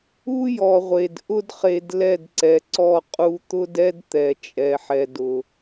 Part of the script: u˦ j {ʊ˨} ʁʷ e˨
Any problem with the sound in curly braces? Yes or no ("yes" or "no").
yes